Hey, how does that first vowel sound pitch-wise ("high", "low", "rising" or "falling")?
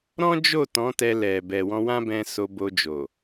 high